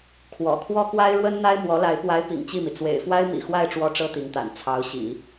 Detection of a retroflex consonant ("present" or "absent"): present